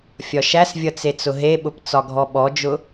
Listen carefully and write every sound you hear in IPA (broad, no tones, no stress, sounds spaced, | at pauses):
fʲ ɒ ʃ æ s vʲ ʌ t͡s e t͡s ʊ ɦ e ɓ ʊ p t͡s ɒ ɡʱ ɔ ɓ ɔ d͡ʒ ʊ